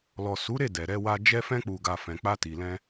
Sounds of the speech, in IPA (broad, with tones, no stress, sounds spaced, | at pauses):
l ɔ˨ s u˨˦ ɾ e˦˨ d ɛ˨ ɾ ɛ˧ w a˧ d͡ʒ ɛ˧ f ɛ̃˧ k͡p u˨ ɡ a˨ f ɛ̃˨ k͡p a˧ t i˨ l ɛ̃˧